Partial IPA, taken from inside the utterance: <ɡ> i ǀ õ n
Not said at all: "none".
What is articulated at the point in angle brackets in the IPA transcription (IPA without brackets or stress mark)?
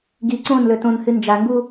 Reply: ɡ